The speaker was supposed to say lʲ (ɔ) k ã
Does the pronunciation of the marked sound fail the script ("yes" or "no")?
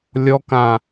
no